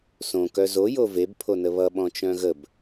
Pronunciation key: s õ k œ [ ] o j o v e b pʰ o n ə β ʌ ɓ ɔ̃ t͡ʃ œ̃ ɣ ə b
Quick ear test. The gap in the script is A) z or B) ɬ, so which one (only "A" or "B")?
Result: A